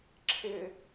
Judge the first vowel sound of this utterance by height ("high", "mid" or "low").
high